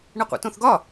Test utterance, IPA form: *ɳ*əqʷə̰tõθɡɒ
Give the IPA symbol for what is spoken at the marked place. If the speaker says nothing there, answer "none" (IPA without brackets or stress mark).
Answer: ɳ